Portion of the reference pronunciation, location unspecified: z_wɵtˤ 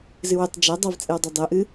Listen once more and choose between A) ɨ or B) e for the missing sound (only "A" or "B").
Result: A